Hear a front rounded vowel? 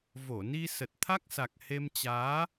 no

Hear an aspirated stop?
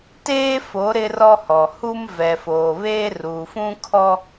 yes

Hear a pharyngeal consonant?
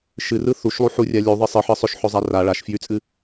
yes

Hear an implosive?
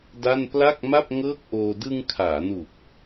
no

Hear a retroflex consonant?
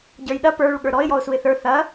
yes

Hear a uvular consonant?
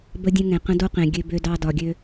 yes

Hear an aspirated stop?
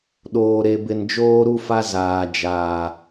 no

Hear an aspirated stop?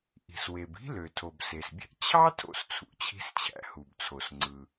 yes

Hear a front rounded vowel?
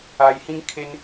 no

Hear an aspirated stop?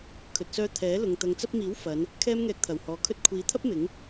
yes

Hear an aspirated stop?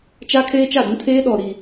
yes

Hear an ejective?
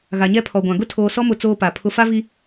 no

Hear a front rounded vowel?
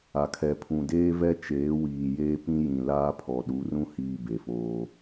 no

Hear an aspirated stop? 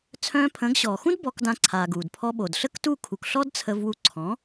yes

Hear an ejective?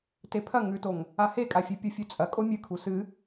yes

